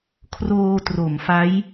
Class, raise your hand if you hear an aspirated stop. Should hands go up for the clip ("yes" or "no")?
yes